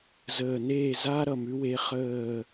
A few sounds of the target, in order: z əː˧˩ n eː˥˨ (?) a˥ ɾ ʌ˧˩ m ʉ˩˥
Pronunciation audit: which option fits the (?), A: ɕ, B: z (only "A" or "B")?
B